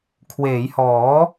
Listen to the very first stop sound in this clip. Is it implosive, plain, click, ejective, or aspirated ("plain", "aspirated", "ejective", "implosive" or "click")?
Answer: aspirated